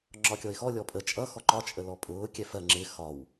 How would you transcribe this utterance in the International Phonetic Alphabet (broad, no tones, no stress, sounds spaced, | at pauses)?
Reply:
ŋ͡ǁ ɒ kʲ ɔ ɪ̯ x ɔ lʲ ɔ pʼ ə t͡ʃʼ ʌ x ɔ ǃ ɒ t͡ʃʼ ə l ɔ pʼ ʊː kʲ ɛ f ɜ ŋ͡ǁ ɪ x ɒ w